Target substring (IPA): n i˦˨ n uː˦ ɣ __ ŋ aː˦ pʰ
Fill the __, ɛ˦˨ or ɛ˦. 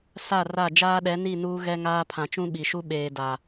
ɛ˦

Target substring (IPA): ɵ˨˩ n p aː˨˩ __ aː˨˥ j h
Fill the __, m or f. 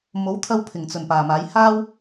m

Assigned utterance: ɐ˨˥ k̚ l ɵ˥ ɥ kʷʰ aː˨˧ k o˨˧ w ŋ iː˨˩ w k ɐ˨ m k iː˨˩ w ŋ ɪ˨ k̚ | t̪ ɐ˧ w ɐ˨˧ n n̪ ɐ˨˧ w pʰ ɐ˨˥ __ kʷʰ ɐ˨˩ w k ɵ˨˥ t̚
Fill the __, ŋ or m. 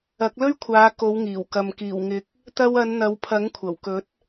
ŋ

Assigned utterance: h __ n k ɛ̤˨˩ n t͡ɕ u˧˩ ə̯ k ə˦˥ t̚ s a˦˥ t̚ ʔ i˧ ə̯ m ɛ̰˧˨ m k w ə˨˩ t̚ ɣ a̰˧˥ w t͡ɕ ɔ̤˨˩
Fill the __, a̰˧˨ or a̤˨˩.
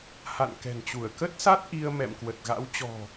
a̰˧˨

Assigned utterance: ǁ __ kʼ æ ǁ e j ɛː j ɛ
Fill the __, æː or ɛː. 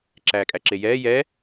æː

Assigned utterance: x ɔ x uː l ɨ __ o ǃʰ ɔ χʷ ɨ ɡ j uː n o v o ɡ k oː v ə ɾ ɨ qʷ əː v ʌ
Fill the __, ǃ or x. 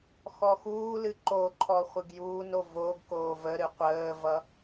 ǃ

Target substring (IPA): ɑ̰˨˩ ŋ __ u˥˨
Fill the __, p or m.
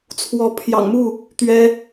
m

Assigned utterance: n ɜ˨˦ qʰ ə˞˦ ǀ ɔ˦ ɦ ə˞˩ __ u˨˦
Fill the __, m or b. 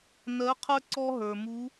m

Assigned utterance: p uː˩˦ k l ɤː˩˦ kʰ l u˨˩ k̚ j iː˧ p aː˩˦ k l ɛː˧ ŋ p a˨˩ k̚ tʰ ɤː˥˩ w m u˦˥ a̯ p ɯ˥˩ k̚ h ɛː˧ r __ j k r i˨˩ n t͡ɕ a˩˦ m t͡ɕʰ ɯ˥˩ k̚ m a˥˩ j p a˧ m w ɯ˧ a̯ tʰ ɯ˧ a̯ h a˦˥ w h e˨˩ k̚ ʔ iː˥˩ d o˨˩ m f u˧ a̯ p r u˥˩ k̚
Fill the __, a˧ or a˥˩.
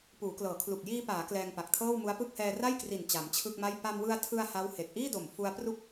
a˥˩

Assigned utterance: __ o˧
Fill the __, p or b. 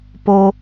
p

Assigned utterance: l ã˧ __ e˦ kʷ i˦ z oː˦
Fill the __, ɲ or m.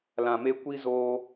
m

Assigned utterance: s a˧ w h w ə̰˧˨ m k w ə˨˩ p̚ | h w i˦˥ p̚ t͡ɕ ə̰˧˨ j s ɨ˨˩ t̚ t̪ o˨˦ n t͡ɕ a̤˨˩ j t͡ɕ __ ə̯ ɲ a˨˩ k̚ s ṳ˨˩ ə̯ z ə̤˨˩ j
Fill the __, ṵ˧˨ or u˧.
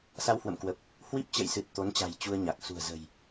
u˧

